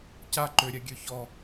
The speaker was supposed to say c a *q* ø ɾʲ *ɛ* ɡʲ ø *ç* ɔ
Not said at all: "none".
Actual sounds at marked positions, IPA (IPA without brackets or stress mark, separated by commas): ǃ, ɛ, ç